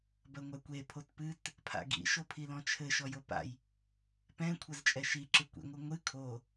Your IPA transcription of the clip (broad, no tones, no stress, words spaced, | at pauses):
bɐŋʷakʷe pʰotpɨt | pʰa̰ɡḭ ʃopʰilɔ̃t͡ʃʰɘ ʃɔjopa̰j | pɛ̃ kʷʰɐzt͡ʃʼɛʃi ǁɨkʷḭ ŋʷɨŋʷɨ kʰo